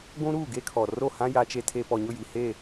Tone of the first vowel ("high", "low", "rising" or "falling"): high